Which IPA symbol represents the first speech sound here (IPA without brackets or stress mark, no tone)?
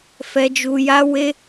f